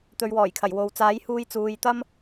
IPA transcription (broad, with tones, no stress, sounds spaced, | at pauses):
t̪ ɵ˧ ɥ w ɔː˨˩ j kʰ ɐ˨˩ j w o˨˧ w t͡s aː˨˥ j h uː˧ j t͡s uː˨ j t̪ ɐ˥ m